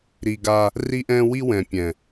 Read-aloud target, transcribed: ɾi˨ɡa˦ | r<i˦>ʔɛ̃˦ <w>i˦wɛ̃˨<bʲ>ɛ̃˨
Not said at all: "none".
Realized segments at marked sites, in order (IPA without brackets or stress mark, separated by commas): i˦, w, pʲ